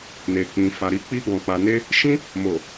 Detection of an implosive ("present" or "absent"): absent